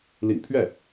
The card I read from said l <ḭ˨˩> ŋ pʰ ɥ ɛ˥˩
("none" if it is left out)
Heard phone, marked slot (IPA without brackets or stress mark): ḭ˨˩